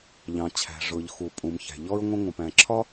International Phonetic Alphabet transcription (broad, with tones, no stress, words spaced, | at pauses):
ʎɑ̃˩t͡ɕʰæ̤˩ ʐʊ˩ʎxu˩ pʼũ˩mçæ̤˩ ʎɔ˥ɹŋʷə̃˥ ŋʷə̃˩pæ̃˩ǁʰɒ˥